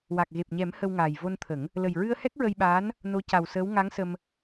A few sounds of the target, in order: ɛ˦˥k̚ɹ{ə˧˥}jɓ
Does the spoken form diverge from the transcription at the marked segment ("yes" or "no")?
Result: yes